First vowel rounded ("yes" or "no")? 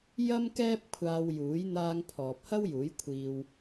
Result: no